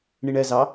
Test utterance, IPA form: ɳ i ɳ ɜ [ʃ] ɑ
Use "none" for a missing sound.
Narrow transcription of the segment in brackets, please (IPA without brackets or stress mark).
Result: z